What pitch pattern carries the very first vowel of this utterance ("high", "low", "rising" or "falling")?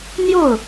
falling